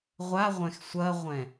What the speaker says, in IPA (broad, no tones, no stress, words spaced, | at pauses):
ʁʷaʁʷɛ̃x sʷɐʁʷɛ̃